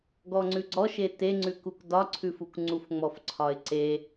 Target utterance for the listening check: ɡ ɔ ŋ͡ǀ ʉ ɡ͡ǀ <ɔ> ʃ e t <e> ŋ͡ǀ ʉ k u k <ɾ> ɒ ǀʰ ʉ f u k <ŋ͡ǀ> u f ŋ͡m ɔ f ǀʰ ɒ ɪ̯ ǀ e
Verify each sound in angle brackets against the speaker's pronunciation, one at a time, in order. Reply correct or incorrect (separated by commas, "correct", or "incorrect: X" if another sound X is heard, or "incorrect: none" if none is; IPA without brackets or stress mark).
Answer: correct, correct, incorrect: d, correct